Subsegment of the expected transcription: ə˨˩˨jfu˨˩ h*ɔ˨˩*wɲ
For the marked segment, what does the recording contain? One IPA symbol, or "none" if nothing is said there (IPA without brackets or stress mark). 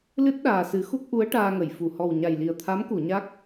ɔ˨˩